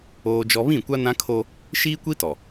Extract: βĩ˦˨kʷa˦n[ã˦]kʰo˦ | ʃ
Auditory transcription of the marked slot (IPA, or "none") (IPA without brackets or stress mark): ã˦